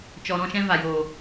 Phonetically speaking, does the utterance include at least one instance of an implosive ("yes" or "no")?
no